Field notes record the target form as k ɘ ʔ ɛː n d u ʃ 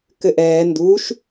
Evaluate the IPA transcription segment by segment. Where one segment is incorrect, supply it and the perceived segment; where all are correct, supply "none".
none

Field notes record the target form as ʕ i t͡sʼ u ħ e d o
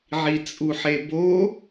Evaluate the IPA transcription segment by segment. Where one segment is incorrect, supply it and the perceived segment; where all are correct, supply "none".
d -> b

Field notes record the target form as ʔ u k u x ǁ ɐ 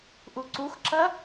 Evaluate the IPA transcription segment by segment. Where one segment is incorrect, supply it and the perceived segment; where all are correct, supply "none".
k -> ǀ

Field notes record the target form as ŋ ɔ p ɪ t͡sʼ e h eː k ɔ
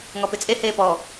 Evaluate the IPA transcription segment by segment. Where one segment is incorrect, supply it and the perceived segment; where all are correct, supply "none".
k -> p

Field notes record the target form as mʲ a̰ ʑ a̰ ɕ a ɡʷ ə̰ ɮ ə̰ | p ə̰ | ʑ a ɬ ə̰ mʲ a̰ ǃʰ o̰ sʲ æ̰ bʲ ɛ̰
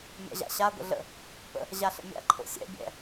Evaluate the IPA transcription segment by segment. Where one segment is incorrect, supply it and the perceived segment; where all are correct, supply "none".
æ̰ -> ɛ̰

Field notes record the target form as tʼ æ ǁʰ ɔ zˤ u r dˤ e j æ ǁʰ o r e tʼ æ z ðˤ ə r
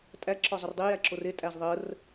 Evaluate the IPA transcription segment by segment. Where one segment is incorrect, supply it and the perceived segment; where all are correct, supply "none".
none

